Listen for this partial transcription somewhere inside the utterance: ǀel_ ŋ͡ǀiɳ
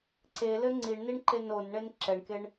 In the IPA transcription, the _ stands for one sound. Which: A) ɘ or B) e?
A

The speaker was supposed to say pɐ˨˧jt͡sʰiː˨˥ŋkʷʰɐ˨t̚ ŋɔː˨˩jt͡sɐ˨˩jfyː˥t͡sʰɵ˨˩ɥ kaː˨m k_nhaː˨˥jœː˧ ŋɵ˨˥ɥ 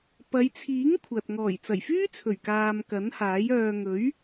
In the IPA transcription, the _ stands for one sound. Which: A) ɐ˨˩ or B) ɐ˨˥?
B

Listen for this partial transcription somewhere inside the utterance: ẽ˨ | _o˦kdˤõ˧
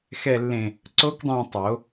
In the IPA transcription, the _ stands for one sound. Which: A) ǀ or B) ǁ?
A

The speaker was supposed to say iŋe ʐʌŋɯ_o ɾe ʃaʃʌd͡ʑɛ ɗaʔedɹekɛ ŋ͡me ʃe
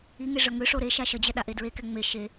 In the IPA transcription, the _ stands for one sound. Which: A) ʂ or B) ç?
A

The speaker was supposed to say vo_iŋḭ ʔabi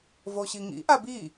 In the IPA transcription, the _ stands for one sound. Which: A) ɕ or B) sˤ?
A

